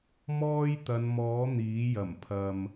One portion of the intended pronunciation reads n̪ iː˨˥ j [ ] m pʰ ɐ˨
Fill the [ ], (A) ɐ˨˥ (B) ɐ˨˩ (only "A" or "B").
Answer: B